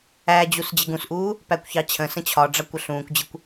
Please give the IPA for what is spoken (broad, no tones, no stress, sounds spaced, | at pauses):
æ d͡ʑ u s d͡ʑ ɪ ɡ ũ s ʔ uː | p æ kʷ ç ɑ t͡ɕʰ ə̃ s ə̃ t͡ɕʰ ɒ ɖ͡ʐ ɑ kʷ ə ɬ ũː kʷ d͡ʑ ɪ kʷ